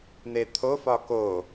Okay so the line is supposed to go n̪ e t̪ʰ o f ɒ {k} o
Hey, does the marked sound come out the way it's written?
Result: yes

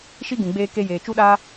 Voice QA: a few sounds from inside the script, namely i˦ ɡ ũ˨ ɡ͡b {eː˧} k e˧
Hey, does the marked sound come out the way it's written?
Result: yes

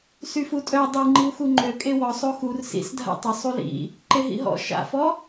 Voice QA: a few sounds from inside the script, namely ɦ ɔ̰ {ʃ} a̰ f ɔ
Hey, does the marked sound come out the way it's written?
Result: yes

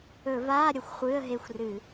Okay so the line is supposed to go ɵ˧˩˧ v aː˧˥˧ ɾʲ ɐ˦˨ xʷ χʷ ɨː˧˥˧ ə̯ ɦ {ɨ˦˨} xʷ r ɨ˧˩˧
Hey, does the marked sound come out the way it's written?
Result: no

